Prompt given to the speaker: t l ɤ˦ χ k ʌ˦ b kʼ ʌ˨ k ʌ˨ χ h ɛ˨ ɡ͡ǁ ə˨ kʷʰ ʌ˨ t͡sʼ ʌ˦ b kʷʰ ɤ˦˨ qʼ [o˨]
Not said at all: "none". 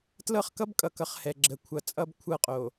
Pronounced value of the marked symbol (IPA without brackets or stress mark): o˨